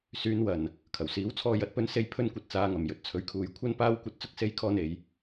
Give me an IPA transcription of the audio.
syː˨˧nwɐ˨˩n | kʰɐ˨˩wsiː˨˥wt͡sʰɔː˧ jɐ˨˥t̚pɵ˨˧nse˨˧j pʰɵ˧nkʷɐ˨t̚ t͡saː˨˧ŋɐ˨˩m jɵ˨t̚t͡sʰɵ˨˥ɥkʰuː˨j kʷʰɐ˧n paː˧wkʷɐ˨t̚ t͡sʊ˧k̚se˨˧jkʰɔː˨n e˨˧j

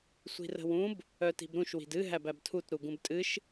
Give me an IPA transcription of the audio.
sʷi̤rə̤wũb | œti̤bɾũʃ wi̤dɨ ɦæbæbtʰut ɾuɡũbtʼɨʃ

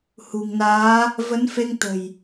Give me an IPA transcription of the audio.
hṳ˨˩ŋnaː˨˦ | və˨˦nfe˧ŋ t̪ə̤˨˩j

